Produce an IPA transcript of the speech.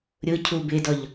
ɾʲ ʊ cʰ u b ɪ d ɔ ʎ

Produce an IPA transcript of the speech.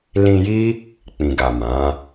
l ĩ˧ j i˦ | k͡p ĩ˨ ɡ a˨ m ã˨˦

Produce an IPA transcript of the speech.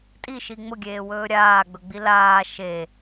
tʼ i ʃ i ŋ͡m ʊ ɡʲ eː w ɵː ɾʲ aː ɡ͡b ɵ ɡ͡b i l aː ʃ e

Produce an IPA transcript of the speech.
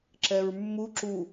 ǁ ɛ ɹ mː u ǁ u

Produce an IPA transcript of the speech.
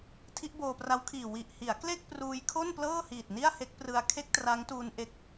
tʰ i˦˥ ʔ b oː˧ p r a˦˥ w kʰ iː˨˩ w i˨˩ ʔ h i˩˦ a̯ k l e˥˩ k̚ p r uː˧ j kʰ o˥˩ n p l ɤː˥˩ h iː˨˩ t̚ n i˥˩ a̯ h e˦˥ k̚ p r ɯ˧ a̯ kʰ e˥˩ k̚ t r a˦˥ ŋ t uː˧ n ʔ e˦˥ k̚

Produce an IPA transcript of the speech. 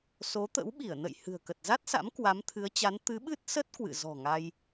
s o˨˦ t̪ ə̰˧˥ w ɓ i˧˩ ə̯ n ə̰˧˨ j h ɨ̤˨˩ ə̯ k ə˨˩ t̚ z a˦˥ t̚ s a̰˧˥ m k w a˨˦ m t̪ʰ ɨ˨˦ ə̯ t͡ɕ a˨˦ n t̪ ɨ˨˦ ɓ ɨ˦˥ t̚ s ə˦˥ t̚ k w ɨ̰˧˨ z ɔ̤˨˩ ŋ a˧ j

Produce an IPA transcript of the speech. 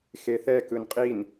x e θ ɛ k ɯ n qʼ i n

